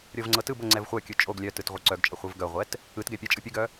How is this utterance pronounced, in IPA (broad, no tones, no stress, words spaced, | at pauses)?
ɾʲɤvŋ͡ǀɤtɯbɤ ŋ͡ǀɛvχʷœkʲɯ t͡ʃʼoɡ lʲœtɯt ʁʷɯǀœɡt͡ʃʼə χʷɯvɡœʁʷɛt | ɯtɡɛ pʲɛt͡ʃʼɯ pʲɯɡœ